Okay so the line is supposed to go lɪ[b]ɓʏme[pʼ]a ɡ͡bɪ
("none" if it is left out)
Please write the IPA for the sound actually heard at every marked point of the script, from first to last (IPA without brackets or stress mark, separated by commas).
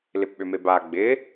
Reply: p, b